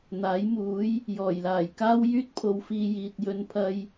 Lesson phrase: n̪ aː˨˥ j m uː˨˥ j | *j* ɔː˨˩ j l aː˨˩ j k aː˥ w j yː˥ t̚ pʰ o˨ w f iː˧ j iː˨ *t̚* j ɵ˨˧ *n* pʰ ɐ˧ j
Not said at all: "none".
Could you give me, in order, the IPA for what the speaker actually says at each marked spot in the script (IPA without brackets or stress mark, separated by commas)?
j, t̚, n